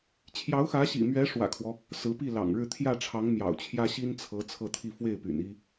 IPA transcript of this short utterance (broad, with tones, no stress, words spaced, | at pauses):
t͡ɕʰjɑ˧˥ʊ̯xä˧˥ɕḭ˨˩mɥɛ˧˥ ʂwä̰˨˩kʰwɔ˦ | sɹ̩˧˥pi˥˩ lɑ̰˨˩ŋɻɻ̩˥˧ t̪ʰjä˥˩ʈ͡ʂʰɑ˧˥ŋ mjɑ̰˨˩ʊ̯t͡ɕʰjä˥ ɕi˥nt͡sʰɤ˧˥ t͡sʰɤ˥˧t̪ʰi˥˧ fwe˥˩ɪ̯py̰˨˩ni˥